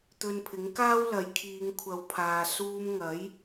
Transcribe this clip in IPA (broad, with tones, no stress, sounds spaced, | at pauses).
t̪ ɵ˧ n pʰ ɪ˨˥ ŋ k aː˥ w l ɐ˨˧ j kʰ iː˨˧ ŋ kʷʰ ɐ˨˧ w pʰ aː˨ s uː˧ m ŋ ɐ˨˥ j